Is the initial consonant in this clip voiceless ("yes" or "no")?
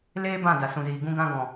no